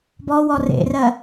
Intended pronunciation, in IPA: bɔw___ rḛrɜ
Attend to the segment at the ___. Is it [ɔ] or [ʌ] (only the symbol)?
ɔ